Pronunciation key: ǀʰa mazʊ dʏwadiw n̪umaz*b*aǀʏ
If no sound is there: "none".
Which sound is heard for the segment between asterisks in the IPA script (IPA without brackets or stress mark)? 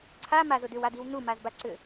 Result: b